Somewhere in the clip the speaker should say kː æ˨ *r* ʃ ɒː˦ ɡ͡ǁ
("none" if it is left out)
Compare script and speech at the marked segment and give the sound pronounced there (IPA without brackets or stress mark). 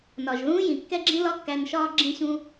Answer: n